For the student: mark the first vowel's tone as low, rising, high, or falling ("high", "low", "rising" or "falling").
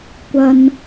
high